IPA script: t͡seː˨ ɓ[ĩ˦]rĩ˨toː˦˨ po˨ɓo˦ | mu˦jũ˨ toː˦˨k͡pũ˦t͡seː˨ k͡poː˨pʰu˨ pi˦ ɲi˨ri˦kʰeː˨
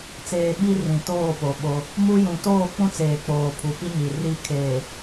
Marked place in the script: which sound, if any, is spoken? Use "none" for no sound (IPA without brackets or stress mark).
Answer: i˦